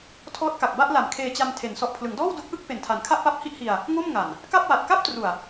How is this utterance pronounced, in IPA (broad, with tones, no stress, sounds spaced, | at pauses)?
tʰ ɔː˦˥ t̚ k a˨˩ k̚ b a˥˩ ʔ l a˩˦ m kʰ eː˧ t͡ɕ a˧ m tʰ e˩˦ n s ɔ˨˩ ʔ pʰ l ɯ˩˦ ŋ d ɔː˥˩ w d o˦˥ k̚ ʔ ɯ˥˩ k̚ p e˨˩ n tʰ a˩˦ n kʰ a˥˩ ʔ p a˦˥ p̚ h i˥˩ ʔ h i˧ a̯ | ŋ o˥˩ m ŋ a˨˩ n | k a˥˩ p̚ w a˨˩ t̚ k a˥˩ p̚ t r u˨˩ a̯